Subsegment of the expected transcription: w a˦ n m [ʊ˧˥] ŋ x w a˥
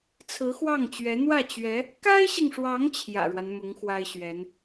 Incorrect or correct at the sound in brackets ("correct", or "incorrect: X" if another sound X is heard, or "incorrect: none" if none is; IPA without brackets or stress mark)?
correct